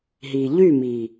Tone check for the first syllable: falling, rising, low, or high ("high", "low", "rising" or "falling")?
low